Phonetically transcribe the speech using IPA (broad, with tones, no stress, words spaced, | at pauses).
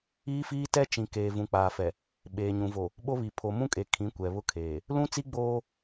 iː˦fiː˦tɛ˦ t͡ʃĩ˨ keː˨vũ˨k͡paː˨fɛ˨ | ɓeː˨ɲũ˨ vo˨ | ɓo˦βi˨ pʰo˨mũ˦kʼe˨ kʰĩ˨˦kʷɛ˨βʊ˦kʰeː˨ | lũ˦t͡si˦ ɡ͡boː˦